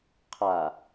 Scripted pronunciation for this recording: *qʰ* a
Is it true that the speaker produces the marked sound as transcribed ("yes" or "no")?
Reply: yes